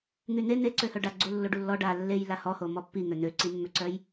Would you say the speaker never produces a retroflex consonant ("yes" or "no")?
no